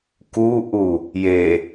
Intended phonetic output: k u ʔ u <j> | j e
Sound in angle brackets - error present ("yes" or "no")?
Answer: yes